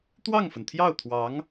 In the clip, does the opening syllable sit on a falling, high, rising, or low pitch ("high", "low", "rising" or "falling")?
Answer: falling